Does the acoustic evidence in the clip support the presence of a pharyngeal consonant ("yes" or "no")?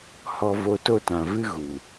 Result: no